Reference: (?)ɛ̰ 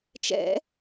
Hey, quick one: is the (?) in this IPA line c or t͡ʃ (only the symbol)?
t͡ʃ